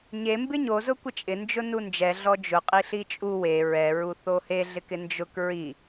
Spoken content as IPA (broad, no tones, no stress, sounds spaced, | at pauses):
ɲ e m b ɪ ɲ o z ʊ kʷ ɪ t͡ʃʼ ɪ n d͡ʒ ʊ n u n d͡ʒ ɛ ɮ ɔ d͡ʒ ʊ qʼ i ɬ i t͡ʃʼ u w e ɹ ɛ ɹ u θ o h e ɮ ɪ k ɪ n d͡ʒ ʊ k ɹ i